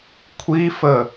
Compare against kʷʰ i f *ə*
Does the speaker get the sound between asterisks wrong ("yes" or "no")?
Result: no